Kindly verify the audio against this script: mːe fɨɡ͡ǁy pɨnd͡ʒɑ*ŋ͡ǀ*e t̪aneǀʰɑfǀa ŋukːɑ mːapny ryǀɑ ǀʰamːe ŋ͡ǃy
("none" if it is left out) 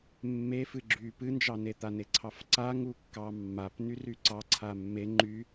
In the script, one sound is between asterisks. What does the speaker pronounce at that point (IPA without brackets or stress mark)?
n